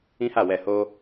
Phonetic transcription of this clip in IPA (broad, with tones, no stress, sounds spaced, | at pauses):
ĩ˦ h a˦˨ w ɛ˧ h o˦